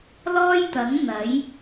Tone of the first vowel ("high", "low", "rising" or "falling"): high